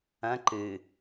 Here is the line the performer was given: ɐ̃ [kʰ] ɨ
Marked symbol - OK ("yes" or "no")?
no